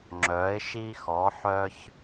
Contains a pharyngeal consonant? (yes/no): yes